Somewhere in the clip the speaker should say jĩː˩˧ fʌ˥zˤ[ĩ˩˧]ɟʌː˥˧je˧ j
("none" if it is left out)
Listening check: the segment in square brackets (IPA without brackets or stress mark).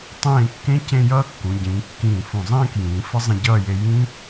ĩ˧